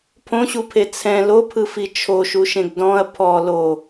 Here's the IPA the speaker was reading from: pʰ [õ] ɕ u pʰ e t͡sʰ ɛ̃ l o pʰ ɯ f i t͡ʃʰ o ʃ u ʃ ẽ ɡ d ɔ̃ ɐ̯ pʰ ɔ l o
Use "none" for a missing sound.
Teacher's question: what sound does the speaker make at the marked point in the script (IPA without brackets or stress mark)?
õ